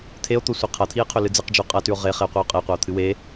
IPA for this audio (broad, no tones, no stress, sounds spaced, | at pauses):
t̪ʰ e o̯ t̪ o sʷ e qʰ ɐ t̪ʰ i e̯ qʰ ɵ l ɨ d͡z ɨ q d͡ʒ ʉ qʼ ɐ t ʉ o̯ ʁ e χ e o̯ qʷ i o̯ qʼ e qʷ ɐ o̯ t̪ʰ ɨ w e